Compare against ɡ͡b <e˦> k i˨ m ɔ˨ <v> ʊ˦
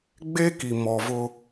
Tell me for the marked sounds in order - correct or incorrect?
correct, correct

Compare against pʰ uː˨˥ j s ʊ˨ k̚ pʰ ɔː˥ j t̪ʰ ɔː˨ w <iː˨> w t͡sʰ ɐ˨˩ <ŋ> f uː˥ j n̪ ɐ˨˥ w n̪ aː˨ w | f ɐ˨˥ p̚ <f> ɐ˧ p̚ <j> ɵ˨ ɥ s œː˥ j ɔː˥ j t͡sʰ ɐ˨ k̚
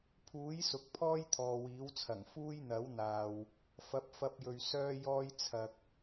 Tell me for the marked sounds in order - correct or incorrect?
incorrect: iː˨˥, correct, correct, correct

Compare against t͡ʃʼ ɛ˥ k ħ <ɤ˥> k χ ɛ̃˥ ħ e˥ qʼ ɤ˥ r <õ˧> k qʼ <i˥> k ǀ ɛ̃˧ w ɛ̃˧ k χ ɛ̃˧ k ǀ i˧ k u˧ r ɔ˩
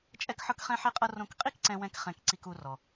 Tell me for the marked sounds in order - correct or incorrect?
correct, correct, correct

